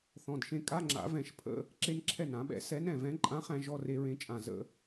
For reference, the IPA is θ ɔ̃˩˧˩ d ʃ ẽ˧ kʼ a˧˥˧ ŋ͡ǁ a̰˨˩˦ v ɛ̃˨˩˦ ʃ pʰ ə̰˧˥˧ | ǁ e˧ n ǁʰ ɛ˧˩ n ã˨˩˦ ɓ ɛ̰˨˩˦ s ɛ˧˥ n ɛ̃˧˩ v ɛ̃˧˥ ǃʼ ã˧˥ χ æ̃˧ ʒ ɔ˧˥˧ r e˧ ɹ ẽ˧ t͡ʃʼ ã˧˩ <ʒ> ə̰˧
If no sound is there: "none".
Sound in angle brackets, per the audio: z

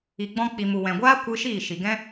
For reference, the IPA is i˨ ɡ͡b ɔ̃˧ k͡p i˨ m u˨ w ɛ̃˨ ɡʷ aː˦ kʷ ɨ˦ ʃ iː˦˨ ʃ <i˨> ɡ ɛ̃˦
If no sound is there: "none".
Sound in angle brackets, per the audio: i˨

